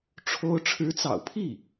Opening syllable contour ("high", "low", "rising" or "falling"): high